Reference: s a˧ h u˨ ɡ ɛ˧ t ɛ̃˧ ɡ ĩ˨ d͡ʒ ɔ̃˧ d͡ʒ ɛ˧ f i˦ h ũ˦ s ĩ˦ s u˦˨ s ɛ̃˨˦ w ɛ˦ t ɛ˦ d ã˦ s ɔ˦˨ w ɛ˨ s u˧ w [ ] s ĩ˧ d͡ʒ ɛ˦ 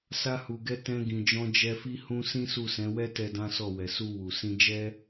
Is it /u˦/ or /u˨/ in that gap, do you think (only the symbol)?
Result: u˨